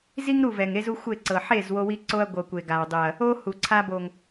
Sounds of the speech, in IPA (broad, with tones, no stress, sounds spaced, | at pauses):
z i˦ ŋ ɾ u˦˨ v ɛ˨ ŋ e˦ z u˦ xʷ e˦˨ ǀ ɤ˨ ħ e˦˨ z w o˦ w i˦ ǀ o˦ ɐ̯ ɡʷ ɤ˨ kʷ e˨ ɡ a˨ w dˤ ɯ˨ ɐ̯ | o˦ h u˨ ǀʰ a˦ b o˨ ŋ